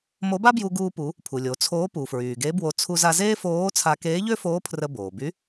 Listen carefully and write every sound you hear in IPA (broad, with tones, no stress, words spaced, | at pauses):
mo˧˥ba˥bju˧ ɡuː˧pu˩˧ | pʰu˩lʲo˩˧t͡sʰoː˧˥ pu˩fɹyː˩ɡe˧˥bwo˧ t͡sʰu˧za˧ zeː˥foː˧˥t͡sʰa˧ keː˧˥ʎø˥foː˧˥ pʰrə˧boː˩by˧˥